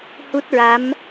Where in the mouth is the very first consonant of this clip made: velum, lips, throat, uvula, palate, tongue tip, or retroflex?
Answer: throat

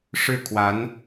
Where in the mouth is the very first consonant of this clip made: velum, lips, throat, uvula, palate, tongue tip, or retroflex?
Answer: retroflex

